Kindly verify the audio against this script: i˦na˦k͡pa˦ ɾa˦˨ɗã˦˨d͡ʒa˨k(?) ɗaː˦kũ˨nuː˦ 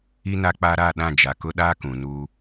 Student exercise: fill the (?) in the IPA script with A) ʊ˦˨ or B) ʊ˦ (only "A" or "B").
B